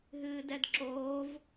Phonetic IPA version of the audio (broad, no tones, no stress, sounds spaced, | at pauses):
ɦ ɨː d ɛ d ǁ oː v